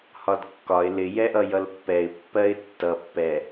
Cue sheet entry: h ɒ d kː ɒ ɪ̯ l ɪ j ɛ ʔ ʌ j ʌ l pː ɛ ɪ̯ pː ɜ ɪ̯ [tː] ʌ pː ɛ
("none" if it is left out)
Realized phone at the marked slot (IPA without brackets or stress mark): tː